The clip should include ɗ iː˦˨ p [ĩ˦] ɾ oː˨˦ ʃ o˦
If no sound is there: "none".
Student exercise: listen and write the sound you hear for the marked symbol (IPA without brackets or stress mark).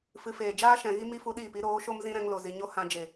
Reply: i˦